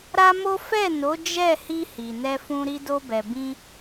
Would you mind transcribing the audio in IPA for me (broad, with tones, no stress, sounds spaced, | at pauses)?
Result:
ɾ a˦ m o˦ f ɛ˦˨ n o˨˦ d͡ʒ ɛ˦˨ h i˧ h i˨ n ɛ˧ f ũ˧ ɾ i˧ d o˧ b ɛ˨ b ĩ˧